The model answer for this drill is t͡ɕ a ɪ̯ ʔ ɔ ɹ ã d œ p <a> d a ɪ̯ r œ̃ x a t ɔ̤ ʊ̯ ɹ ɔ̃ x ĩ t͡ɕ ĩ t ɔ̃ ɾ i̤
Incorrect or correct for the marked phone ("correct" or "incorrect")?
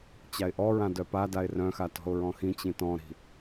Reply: correct